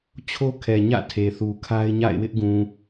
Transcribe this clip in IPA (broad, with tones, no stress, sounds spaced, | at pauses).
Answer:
t͡ɕʰ o˦ kʰ ɛ˨ ɲ ä̰˦˨ tʰ e˨ θ u˨ kʰ a˦ ɪ̯ ɲ a̰˦˨ ɪ̯ w ɪ˦ ʔ ɡ ũ˨